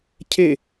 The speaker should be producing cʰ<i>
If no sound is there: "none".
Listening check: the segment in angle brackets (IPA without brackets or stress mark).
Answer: e